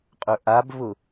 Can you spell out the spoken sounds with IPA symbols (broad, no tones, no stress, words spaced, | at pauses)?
qʼɵʔabvʊ